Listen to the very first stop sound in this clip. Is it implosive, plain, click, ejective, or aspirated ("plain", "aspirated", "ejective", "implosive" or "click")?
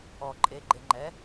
click